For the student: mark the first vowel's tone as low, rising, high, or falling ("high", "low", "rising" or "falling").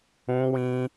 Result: high